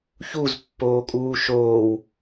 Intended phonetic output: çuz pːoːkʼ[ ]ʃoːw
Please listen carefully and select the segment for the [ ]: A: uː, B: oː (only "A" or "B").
A